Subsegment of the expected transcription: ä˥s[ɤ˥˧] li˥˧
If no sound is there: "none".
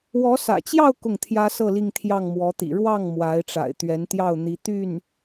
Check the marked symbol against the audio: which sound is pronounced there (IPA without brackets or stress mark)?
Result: ɤ˥˧